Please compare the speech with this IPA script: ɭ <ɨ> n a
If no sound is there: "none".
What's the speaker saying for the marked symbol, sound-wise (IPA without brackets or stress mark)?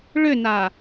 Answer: ʏ